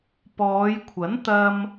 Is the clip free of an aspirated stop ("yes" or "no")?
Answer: no